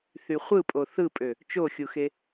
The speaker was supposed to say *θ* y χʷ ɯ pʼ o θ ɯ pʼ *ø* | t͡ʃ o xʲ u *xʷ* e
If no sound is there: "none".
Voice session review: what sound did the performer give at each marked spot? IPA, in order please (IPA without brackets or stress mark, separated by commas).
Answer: θ, ø, x